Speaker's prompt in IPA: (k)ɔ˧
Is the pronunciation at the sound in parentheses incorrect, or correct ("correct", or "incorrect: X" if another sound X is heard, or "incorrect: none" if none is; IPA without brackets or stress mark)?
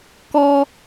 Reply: correct